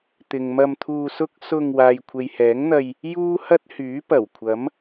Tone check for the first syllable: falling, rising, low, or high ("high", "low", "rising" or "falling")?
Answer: low